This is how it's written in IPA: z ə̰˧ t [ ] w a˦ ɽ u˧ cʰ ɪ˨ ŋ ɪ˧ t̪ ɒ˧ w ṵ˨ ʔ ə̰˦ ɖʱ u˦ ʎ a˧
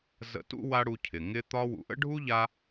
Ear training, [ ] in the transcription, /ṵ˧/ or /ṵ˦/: ṵ˦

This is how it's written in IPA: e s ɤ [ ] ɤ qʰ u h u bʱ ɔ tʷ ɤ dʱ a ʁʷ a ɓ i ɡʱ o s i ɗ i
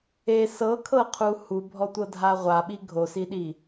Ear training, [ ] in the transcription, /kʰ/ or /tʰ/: kʰ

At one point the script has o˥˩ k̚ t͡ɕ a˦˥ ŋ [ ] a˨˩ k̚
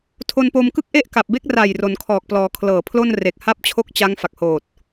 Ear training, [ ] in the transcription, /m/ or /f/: f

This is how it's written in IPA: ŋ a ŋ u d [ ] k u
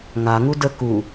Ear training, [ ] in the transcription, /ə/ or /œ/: ə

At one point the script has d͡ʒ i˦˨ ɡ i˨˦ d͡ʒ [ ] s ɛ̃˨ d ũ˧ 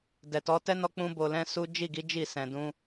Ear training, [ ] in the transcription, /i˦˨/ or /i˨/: i˦˨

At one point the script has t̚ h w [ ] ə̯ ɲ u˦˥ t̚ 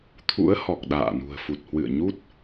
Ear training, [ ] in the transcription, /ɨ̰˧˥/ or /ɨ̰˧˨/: ɨ̰˧˨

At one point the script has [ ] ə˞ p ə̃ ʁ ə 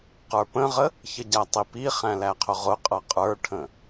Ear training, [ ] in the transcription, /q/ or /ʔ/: q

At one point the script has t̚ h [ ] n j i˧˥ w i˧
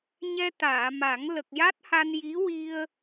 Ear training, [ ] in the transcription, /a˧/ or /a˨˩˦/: a˧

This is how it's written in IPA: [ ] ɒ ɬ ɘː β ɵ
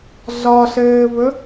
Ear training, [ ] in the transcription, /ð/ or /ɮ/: ɮ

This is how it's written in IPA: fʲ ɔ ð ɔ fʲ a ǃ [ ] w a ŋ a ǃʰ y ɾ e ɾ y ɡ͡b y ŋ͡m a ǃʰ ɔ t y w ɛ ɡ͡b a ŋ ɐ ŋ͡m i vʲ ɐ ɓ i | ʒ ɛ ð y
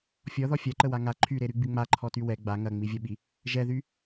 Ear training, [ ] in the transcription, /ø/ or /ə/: ə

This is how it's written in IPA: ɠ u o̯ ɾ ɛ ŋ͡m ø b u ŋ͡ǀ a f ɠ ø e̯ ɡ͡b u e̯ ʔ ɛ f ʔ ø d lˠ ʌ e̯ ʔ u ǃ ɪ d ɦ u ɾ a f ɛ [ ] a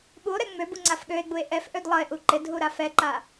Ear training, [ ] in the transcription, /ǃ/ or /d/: ǃ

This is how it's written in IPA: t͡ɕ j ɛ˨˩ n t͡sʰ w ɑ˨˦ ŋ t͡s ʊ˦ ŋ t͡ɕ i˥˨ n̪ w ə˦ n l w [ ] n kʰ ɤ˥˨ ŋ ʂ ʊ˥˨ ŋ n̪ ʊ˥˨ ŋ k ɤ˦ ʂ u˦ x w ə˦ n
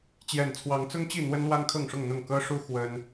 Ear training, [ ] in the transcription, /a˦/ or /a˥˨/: a˦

